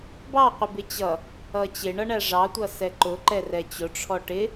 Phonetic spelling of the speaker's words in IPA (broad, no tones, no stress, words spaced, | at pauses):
bɑqʷɪ bɪt͡ɕʌ | ʌt͡ɕɪɳʌɳæ ʐɑtʷʌsɛ ǃʊ ǃɛrɛt͡ɕʊ ʈ͡ʂʰɔʈɪ